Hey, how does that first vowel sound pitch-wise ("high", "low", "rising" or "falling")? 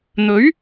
rising